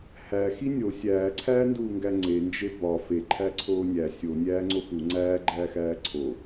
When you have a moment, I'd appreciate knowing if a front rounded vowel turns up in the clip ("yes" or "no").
no